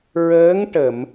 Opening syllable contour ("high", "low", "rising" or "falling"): rising